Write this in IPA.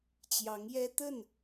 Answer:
t͡ɕ j ɑ˧˥ ŋ j ɛ˥ t̪ ə˥˩ n

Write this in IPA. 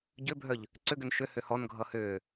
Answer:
ɟ ʏ bʱ œ ʎ | ǀ ʏ ɡ ʏ n ʃ ʏ h ʏ h ɔ n ɡʱ ʌ h ʏː

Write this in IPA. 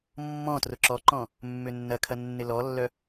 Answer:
mː ɔ̃ t r ʊ ǁ ɔ ǃ ɔ̃ | mː ʏ nː ɐ kʰ ɐ nː ɪ l ɔ lː œ

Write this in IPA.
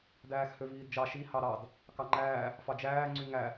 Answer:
d æː x h ø v iː d d͡ʒ ɑ ʃ i h ɑ ɾ ɑ d | k ɑ ŋ͡ǃ æː | f ɑ d͡ʒ æː ŋ͡ǀ y ŋ æ

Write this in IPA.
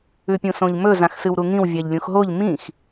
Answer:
ʉ pʲ ũ s õ ʎ m ɵ z ã x s ɨ w ɾ u ŋ ĩ w vʲ a ʎ lʲ ũ x ɦ o ʎ m ĩ x

